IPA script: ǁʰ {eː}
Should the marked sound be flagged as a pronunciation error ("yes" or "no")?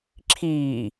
yes